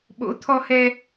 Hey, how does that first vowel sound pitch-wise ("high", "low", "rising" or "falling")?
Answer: rising